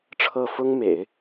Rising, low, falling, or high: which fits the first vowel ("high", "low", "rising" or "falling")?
falling